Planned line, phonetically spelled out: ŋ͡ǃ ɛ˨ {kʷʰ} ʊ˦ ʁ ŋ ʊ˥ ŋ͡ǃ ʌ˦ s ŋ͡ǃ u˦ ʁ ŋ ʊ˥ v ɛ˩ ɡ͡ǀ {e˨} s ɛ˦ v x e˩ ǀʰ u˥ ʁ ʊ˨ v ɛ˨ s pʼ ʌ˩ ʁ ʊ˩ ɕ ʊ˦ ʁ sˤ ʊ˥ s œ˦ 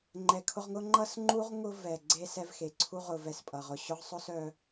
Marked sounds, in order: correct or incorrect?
incorrect: kʰ, incorrect: e˥

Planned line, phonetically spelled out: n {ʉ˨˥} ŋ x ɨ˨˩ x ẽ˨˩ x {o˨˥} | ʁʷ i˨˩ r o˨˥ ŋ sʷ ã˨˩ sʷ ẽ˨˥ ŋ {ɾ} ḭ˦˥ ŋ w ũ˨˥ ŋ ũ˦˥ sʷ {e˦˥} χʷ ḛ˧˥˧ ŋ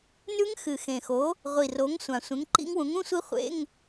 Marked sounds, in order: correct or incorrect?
incorrect: ʉ˦˥, correct, incorrect: ǃ, incorrect: i˦˥

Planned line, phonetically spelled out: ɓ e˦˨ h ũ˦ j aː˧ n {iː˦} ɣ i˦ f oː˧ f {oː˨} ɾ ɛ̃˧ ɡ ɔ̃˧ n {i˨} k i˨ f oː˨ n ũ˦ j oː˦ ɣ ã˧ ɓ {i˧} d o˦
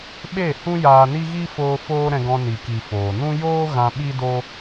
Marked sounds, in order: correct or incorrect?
incorrect: i˦, incorrect: oː˦, correct, incorrect: i˦

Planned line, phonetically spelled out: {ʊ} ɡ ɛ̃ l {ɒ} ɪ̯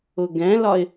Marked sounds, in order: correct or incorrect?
correct, correct

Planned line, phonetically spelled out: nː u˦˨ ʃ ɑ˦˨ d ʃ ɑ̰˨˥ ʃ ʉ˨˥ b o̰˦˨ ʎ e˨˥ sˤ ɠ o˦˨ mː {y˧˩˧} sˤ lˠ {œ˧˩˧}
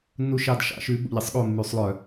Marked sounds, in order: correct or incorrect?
correct, correct

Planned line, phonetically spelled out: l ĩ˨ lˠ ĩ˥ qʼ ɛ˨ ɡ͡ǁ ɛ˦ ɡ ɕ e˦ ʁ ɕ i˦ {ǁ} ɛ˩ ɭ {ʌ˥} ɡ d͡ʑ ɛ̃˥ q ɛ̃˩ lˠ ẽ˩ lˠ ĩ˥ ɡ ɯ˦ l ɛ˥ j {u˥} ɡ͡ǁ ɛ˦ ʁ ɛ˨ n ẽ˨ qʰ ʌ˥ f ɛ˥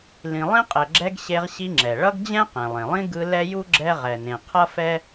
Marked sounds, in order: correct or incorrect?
incorrect: ŋ͡ǁ, correct, correct

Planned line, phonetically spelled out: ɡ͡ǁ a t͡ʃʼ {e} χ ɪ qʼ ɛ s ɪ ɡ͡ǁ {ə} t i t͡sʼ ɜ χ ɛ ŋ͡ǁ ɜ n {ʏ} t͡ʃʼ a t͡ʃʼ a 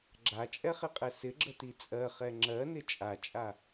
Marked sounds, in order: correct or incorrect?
incorrect: ɛ, correct, incorrect: ɪ

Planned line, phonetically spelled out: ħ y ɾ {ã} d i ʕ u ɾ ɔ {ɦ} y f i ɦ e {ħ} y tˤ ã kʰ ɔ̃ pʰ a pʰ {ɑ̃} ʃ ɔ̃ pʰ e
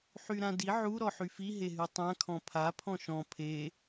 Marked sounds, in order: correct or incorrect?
correct, incorrect: ħ, incorrect: ɦ, incorrect: ɔ̃

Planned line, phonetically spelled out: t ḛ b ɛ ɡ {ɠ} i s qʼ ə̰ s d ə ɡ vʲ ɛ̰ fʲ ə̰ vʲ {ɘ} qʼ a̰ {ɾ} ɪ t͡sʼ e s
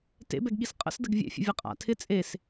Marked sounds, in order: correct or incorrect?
correct, incorrect: ɛ, incorrect: tʰ

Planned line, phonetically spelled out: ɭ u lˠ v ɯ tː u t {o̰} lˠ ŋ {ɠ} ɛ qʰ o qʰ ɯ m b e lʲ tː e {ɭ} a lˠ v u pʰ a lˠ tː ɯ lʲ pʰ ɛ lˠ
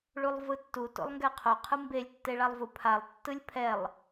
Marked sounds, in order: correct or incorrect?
correct, incorrect: ɡ, correct

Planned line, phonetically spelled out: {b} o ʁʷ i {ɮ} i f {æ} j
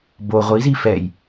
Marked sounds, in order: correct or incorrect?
correct, incorrect: z, incorrect: ɛ

